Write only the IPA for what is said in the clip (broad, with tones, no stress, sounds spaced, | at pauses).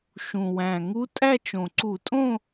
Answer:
ʃ ũ˨˩ w æ̃˨˩ ŋ u˧˥ tʼ æ˥˧ t͡ʃ õ˨˩ ǀ u˧˩˧ tʼ õ˥˧